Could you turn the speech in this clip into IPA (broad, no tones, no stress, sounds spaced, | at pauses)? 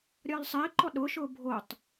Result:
ɾʲ ɒː l sˤ ɪː ǃ ɔ ɗ ʊː ʃ ʊː bʱ o tˤ